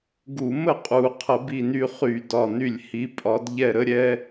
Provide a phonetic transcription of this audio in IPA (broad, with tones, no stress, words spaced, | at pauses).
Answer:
ɡu˧˩˧mə˥˩qʼu˧˩˧qʰə˧˩˧ bi˥˩ny˥˩χy˧˩˧ dɒ˥˩ny˥˩lʲ hi˨˥pʼɒ˨˥d ʎɛ˥˩ɾə˥ɾʲɛ˥